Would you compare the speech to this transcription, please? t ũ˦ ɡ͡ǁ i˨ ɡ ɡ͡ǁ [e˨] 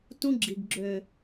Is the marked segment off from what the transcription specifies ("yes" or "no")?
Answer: yes